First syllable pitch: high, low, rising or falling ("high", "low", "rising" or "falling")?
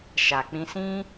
low